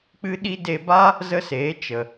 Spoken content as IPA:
k͡p ɨ˦ ɗ i˦ d e˧ b a˦ | z ə˦ s eː˨˦ t͡ʃ ə˨

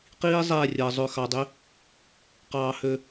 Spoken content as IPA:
q iː˧ zˤ ɛː˦˨ rʲ ɜ˨ zˤ ø˨ x ɑ˨ dˤ i˦ | q ɑː˧ h ø˧

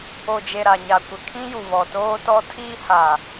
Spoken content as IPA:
o˨ d͡ʒ e˨ ɾ a˨ ɲ a˨ kʷ ɪ˨ kʰ ĩ˦ j u˨ β ɔ˨ t oː˦ t ɔ˦ tʰ iː˦ h a˨

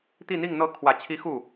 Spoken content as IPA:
t̪ i˥˧ n̪ i˥˧ ŋ n̪ ɤ˥˩ kʰ w ä˨˩ t͡ɕʰ i˧˥ x u˥˩

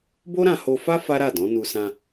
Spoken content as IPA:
b o˦ ɾ ã˧ h o˧ f a˦ f a˦ ɾ a˦˨ d ɔ̃˨˦ n u˧ s ã˧

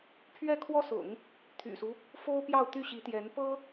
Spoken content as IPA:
pʰ ɥ ɛ˥˩ kʰ w ɔ˥ s ʊ̰˨˩˦ ŋ | t̪ʰ y̰˨˩ s u˦ | f o˥ ʊ̯ p j ɑ˥˧ ʊ̯ t̪ y˥˩ ɕ i˧˥ t̪ j ɛ˧˥ n p ɤ˥

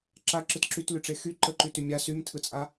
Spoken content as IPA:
ǁ a ǁ ɯ t ǁ y t l y ʈ͡ʂ e x y ǃ ə ǃ y t y mʲ a s y m tʰ ɯ t͡sʼ a

